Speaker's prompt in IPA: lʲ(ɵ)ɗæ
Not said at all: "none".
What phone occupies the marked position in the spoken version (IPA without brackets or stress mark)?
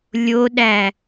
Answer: o